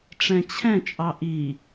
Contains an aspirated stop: yes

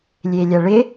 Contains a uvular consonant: no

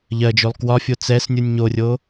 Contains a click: no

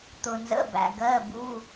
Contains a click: no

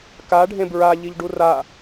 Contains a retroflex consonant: yes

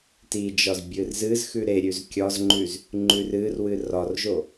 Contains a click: yes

